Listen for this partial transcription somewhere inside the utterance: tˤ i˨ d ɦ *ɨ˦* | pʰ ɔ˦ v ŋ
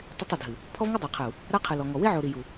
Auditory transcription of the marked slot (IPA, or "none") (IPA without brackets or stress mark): ɨ˨